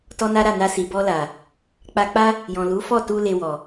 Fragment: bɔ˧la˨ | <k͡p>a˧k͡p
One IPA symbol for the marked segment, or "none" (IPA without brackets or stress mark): k͡p